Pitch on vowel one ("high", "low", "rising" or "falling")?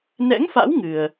rising